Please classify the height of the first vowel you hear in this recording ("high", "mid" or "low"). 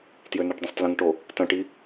mid